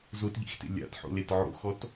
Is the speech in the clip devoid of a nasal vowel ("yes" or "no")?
yes